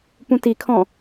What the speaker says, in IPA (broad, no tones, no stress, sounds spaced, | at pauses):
p ũ t i kʰ ɔ̃